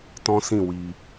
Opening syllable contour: high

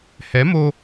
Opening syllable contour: rising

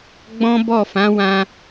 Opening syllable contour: high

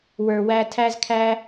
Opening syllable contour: low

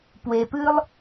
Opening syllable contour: low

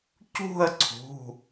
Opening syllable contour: falling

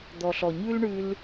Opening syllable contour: low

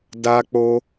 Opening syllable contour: high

